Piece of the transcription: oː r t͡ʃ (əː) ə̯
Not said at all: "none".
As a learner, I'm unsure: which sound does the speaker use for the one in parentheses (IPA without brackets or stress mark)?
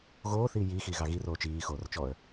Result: ɔː